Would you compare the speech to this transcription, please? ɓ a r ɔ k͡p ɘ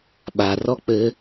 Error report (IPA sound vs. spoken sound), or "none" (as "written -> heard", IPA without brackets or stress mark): none